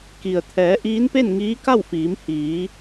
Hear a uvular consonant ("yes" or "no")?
no